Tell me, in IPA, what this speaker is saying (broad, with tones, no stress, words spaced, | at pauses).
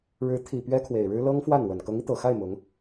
ɻɻ̩˧˥t̪ʰi˨˩ pɥɛ˥kʰwe˨˩ɪ̯ɻɻ̩˥ lɤ˥ŋfwa˥˩nwə˨˩n kɤ˧˥ŋi˧t̪ɤ˨˩xa˥˩ɪ̯ mʊ˧˥ŋ